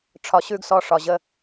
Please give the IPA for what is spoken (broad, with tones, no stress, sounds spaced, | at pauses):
ʈ͡ʂʰ ɒ˨ ɕ ʉ˦ ɡ s ɔ˦ ʂ ɒ˨ ʑ ə˦